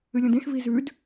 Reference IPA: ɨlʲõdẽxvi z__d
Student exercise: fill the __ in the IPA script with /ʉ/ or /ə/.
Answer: ʉ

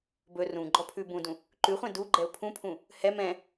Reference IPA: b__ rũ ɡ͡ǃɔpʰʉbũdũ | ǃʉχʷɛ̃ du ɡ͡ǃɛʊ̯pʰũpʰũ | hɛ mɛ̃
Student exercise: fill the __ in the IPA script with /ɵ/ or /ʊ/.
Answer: ɵ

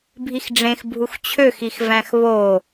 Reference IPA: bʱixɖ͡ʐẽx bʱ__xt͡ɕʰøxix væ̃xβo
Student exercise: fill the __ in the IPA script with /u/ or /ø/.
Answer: u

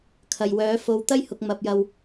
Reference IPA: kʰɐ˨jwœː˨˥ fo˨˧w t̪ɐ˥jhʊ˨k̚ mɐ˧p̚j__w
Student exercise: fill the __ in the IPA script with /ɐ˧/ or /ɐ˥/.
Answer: ɐ˧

